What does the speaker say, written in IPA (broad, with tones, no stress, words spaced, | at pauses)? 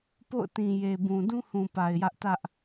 po̰˦˨ʊ̯tĩ˨ je˨bũ˨ dũ˦hũ˨ pa˨ɪ̯jä˦ʔ tä˦ʔ